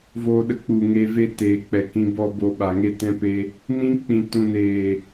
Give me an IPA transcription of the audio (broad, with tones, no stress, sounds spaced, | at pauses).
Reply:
v oː˧ ɗ ə˧ k͡p u˨ ŋ e˧ v e˦ t eː˨ k͡p ɛ˨ k ĩ˧ b ɔ˧ b o˧ ɓ a˨ ŋ e˦ t ɛ̃˦ p e˦ | n ĩ˦ k͡p ĩ˨ t ũ˨ n eː˨